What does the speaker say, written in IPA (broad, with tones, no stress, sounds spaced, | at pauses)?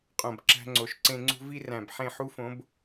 qʼ õ˨ b ǁ æ̤˧ ŋ͡ǀ o˨ ʃ ǀ ẽ˧ ŋ͡ǀ ṳ˦ v i˦ r æ̃˨ b ħ ẽ˦˨ ħ u˦ f õ˨˦ b